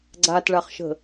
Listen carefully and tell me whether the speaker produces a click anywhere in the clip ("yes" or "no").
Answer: yes